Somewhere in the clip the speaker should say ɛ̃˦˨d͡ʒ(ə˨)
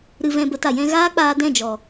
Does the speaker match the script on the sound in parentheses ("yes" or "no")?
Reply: no